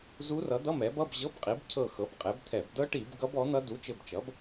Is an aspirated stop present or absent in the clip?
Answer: present